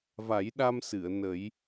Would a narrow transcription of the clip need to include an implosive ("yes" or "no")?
yes